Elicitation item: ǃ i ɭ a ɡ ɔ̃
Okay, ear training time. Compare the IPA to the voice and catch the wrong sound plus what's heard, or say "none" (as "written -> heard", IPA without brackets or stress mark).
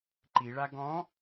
none